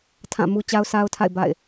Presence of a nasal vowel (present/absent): present